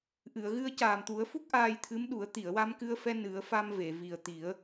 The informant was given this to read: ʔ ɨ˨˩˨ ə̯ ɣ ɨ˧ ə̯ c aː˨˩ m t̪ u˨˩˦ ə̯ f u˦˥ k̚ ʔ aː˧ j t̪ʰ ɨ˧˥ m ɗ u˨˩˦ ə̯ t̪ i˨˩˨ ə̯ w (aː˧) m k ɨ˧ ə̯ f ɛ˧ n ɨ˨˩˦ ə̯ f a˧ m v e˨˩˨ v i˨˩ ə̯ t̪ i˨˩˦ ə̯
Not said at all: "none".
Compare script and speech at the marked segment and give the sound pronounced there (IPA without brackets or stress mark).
a˧